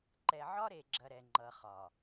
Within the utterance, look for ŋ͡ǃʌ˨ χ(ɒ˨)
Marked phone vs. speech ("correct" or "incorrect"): correct